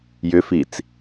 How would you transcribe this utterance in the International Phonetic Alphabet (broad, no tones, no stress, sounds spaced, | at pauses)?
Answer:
j ʏ f i t͡s